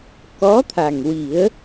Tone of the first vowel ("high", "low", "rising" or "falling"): rising